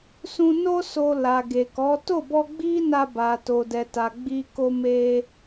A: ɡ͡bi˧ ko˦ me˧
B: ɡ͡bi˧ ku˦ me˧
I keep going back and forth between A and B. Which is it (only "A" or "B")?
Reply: A